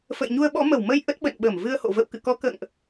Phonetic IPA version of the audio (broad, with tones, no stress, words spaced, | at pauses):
fə̰˧˨jɲu˧ə̯ɓɔ̰˧˥ mə˧˩wmə˧j ʔə˦˥t̚ ɓə̰˧˨nɓə˧˩m vɨ˧ə̯ho̰˧˨ və̰˧˨w kɨ̰˧˨kɔ˨˦ kə̰ː˧˨ŋʔ